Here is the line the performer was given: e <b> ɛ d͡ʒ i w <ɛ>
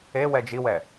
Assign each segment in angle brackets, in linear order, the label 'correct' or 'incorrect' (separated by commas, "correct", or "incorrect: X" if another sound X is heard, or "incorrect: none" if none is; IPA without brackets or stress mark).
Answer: incorrect: w, correct